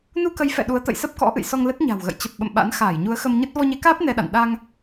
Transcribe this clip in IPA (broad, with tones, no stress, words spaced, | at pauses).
nu˧kə˨˦jfɛ̰˧˨ ɗu˨˦ə̯t̪ə̰˧˨jsə˦˥p̚ kɔ̰˧˥ʔɨ̰˧˨jsɔ˧ŋ lə˦˥t̚ɲa̤˨˩wɣə̰˧˨j t͡ɕə˨˩p̚ɓə̰˧˨m ɓa̰˧˥n xaː˧˩jɲu˨˦ə̯xə˧m ɲə˦˥t̚ vɔ˧ɲe˨˦kaː˦˥p̚ nɛ˧ɗa̰˧˨n ɗa˧ŋ